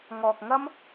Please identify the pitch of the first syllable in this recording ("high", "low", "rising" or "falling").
low